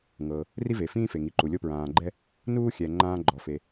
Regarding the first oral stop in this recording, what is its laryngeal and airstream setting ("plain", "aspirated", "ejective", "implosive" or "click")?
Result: click